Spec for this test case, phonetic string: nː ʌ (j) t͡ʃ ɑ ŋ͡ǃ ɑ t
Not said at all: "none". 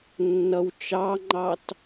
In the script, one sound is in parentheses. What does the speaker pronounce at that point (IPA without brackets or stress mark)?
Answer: w